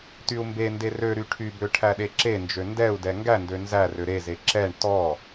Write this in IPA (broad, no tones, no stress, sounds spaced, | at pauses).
t y u̯ m b e n d e r ø ɾ y ʈʰ y b ø ʈʰ æ ɗ e ǁ e n d͡ʒ ø n d ɛ u̯ d ɛ ŋ ɡ æ n d ø n z æ r ø ɾ e z e ǁ ɛ ɳ t ɔ